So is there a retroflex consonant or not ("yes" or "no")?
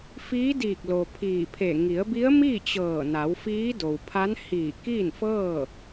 no